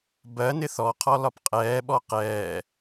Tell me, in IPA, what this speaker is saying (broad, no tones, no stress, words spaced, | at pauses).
bɜnɪ θɔqʰɔ lɒpqʼɛːɓɔ qɛː